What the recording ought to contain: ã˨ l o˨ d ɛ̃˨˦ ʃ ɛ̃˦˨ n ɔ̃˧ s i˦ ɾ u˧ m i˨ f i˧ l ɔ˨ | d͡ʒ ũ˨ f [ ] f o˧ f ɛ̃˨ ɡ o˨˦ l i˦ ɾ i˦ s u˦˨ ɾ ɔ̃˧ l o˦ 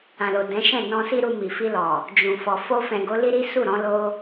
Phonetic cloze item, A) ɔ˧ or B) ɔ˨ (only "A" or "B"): B